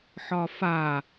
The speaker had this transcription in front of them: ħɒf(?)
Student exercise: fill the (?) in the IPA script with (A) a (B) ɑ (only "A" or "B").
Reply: A